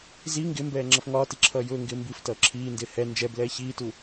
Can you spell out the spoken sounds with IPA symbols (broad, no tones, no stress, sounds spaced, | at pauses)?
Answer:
z i ŋ ɡ ɪ m b ɛː ŋ͡ǁ ʌ f ŋ ɒː t i ǁʰ ʌː j ʊː ŋ ɡ ɪː m b i f t ʌː ǁʰ iː n d ɪː h ɛ n d͡ʒ ɛ b l ɛː ç iː t u